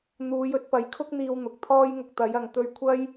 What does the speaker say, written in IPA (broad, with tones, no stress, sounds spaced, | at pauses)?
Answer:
n̪ uː˨˧ j ɵ˧ t̚ p ɐ˨˥ j kʰ ʊ˥ k̚ n̪ iː˧ w n̪ ʊ˨ k̚ t̪ʰ ɔː˥ j ŋ ʊ˧ k̚ t̪ ɐ˨˥ j ɐ˨ ŋ t̪ ɵ˧ ɥ kʷʰ ɐ˥ j